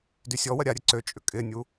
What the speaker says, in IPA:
dysʲɔwɐ ɾʲaɾʲɛ ǀøt͡ʃʼʏ kʼɪnʲu

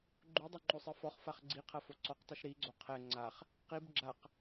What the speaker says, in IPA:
ɡ͡ǃudˤo ŋ͡ǃosˤɘfɔχfaχ ɡ͡ǀiqʰɐ foǀɔqtˤɨʃ ɾiɡ͡ǀo qʰɛ ŋ͡ǀaχ | qib ɡ͡ǁaq

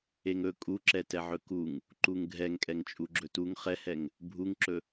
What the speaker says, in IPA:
eŋɵ kʼuǁɛ tɛʕɵkuŋ | ǃuŋɡʱɛŋkʼɛŋ t͡ʃʼuɡ͡ǁɵtuŋ χɛhɛŋ | bʱuŋǁɵ

